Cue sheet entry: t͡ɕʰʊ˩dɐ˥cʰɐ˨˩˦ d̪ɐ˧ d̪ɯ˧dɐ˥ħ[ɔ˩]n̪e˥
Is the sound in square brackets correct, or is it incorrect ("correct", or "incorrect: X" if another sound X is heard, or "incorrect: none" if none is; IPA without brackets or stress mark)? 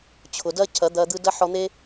incorrect: ɔ˧